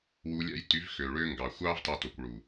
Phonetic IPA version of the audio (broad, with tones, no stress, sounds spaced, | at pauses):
w u˧ lʲ æ̰˦ j t y˨˦ v x ø˨ ɭ ø˦ ŋ ɡ ɑ˨ xʷ ɑː˦ v t ɑ˧ t o˨ kʷ ɭ u˨